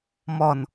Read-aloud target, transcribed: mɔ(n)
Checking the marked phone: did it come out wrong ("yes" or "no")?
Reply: no